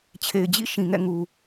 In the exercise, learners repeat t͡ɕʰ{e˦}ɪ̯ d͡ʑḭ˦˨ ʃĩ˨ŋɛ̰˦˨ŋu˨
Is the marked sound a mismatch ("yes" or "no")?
yes